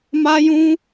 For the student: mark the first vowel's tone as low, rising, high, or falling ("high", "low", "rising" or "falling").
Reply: high